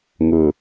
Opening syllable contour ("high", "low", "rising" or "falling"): low